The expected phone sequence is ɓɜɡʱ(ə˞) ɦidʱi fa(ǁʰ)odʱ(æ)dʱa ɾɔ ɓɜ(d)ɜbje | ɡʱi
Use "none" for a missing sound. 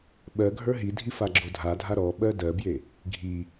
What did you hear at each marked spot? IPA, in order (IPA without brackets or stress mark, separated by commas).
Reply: ə˞, ɡ͡ǁ, a, d